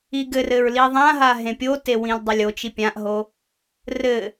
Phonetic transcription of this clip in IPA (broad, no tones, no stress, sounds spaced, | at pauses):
i ɡ ɘ r ɘ ɹ l i ðˤ ã ɦ a ɦ ẽ pʲ o t e w ĩ l dˤ ɘ lʲ o t͡ʃ i pʲ ã ʔ ɦ o | r ɘ